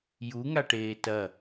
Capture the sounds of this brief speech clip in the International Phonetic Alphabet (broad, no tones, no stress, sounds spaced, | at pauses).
j u ŋ a ʈ eː t ɐ